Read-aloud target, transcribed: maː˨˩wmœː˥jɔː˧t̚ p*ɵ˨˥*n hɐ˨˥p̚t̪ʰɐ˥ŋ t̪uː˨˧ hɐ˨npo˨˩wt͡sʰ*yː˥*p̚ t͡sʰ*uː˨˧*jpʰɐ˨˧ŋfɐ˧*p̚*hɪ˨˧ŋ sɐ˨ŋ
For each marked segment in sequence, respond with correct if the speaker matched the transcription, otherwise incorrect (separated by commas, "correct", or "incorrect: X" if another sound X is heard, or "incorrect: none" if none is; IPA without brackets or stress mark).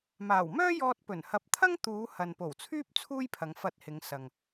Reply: incorrect: ɵ˨˩, correct, incorrect: uː˥, incorrect: t̚